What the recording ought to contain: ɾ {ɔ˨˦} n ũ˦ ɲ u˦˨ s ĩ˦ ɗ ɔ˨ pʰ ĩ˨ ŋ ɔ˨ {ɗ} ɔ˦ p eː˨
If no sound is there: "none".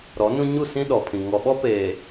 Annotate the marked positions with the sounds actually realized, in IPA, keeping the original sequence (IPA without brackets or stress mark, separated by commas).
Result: ɔ˨˦, ɓ